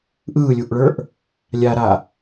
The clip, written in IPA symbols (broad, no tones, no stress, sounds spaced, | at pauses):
ʔ ɯː lʲ u ʔ ɭ ə˞ ʔ | lʲ a ɾ a